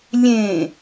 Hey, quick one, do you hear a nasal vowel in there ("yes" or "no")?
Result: yes